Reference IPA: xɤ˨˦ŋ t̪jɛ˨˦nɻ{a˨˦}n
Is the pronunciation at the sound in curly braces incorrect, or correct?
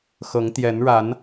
correct